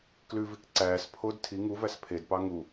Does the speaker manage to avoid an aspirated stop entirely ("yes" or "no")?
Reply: no